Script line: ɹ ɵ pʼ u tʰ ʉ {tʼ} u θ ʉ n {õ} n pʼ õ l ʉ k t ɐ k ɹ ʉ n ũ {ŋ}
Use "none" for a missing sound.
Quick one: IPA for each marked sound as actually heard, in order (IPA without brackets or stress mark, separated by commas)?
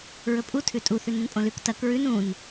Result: tʼ, ũ, n